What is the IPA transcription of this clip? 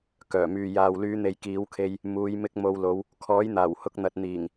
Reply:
k œː˨˩ m yː˨ j aː˨ w l yː˨˧ n̪ e˨ j k iː˨˥ w kʰ e˧ j | m uː˨˧ j m ɪ˧ k̚ m o˨˧ w l o˨˧ w | kʰ ɔː˨˥ j n̪ aː˨˩ w h ʊ˧ k̚ n̪ ɐ˨ t̚ n̪ iː˨˩ ŋ

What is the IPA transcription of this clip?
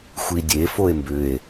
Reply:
xʷ i dʲ e f o e̯ m b ʏ e̯

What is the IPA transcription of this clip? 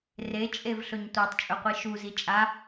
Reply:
r e t͡ʃʼ e v ɬ ɵ ɲ tʷ a tˤ t͡ʃʼ ɵ qʷ i ʃ u z i t͡ʃʼ a

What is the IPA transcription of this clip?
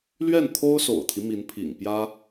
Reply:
l ɥ ɛ˥˩ n t̪ʰ o˥ ʊ̯ s o̰˨˩ ʊ̯ t̪ʰ i˦ m i˧˥ n pʰ ḭ˨˩ ŋ p j ä˥

